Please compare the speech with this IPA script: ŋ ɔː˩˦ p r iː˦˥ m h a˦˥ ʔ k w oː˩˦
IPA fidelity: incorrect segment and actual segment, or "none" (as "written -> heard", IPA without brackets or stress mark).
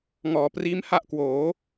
none